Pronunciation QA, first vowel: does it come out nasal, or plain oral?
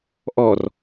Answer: oral